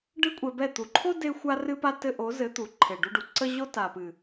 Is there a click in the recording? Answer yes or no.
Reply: yes